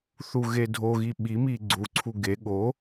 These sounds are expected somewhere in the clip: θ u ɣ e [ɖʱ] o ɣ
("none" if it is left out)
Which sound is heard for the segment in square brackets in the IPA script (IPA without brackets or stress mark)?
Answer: dʱ